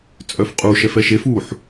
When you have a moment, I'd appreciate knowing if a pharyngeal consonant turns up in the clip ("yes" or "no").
yes